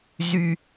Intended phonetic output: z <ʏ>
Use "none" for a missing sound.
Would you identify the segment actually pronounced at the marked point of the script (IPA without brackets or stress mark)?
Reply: y